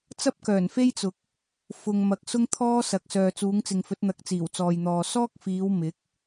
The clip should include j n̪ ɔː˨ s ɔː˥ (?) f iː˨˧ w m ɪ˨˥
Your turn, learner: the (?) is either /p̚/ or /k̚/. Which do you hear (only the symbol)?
k̚